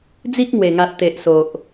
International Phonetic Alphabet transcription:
d͡z i˦ k̚ ŋ w e˨˩ ŋ a˨ t̚ t̪ e˨ ʔ s o˨ ʔ

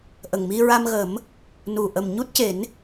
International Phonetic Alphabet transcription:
ʔ ə˨˩ ŋ m i˧ ɹ a˧ m ɣ ə˨˩˦ m | n u˨˩ ʔ ə˨˩ m ɲ u˦˥ t̚ c e˨˩˦ n

